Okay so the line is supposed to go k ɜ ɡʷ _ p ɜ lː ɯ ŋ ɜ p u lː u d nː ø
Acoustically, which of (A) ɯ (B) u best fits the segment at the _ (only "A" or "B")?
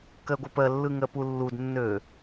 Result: A